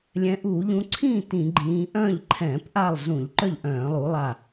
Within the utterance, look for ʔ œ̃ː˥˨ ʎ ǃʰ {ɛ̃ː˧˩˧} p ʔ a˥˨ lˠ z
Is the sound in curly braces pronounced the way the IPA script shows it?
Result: yes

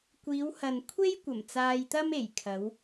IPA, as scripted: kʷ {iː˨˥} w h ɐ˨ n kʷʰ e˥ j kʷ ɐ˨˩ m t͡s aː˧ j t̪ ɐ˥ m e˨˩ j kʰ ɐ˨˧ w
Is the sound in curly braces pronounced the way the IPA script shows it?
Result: no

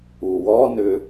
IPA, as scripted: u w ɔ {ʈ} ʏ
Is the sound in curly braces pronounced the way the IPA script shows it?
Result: no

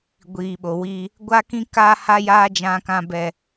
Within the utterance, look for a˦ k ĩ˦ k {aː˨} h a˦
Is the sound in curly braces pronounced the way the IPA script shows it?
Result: no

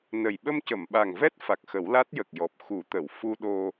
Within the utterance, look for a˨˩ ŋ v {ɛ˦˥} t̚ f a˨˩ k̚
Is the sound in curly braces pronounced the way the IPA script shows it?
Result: yes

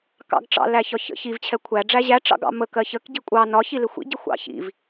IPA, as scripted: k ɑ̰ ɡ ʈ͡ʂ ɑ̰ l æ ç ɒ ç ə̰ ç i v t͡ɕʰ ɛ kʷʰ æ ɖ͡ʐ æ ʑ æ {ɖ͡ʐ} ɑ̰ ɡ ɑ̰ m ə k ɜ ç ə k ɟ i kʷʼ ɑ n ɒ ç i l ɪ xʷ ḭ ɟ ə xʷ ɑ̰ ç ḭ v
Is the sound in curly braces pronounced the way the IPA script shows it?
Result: no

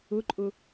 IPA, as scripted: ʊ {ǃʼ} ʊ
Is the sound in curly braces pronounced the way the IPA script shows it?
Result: yes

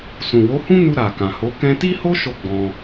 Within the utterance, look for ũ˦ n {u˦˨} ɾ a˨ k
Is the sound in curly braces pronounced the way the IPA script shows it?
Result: no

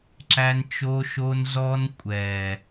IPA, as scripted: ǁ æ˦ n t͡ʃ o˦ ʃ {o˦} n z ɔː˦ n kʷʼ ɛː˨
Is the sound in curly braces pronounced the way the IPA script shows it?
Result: yes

